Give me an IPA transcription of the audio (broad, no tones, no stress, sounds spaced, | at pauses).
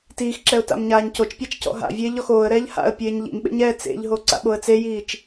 t iː x ǁ ɛ ʊ̯ t a̰ m ɲ aː ɲ c o t͡ʃ pʲ a t͡ʃ c ɔ̰ ɦ a̰ vʲ eː ʎ ɔ x oː ə̯ ɾ ɛː ʎ h a̰ ə̯ pʲ eː ɲ ʎ ḭ m ɓ ḛ ɲ ɛː t͡s ḛ ʎ ɦ o ǀ a̰ ɓ o ə̯ t͡s e j iː t͡ʃ